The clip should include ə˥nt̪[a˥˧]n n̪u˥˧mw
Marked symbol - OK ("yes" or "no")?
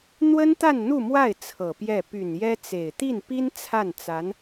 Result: yes